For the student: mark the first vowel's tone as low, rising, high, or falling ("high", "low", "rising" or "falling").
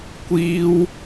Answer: high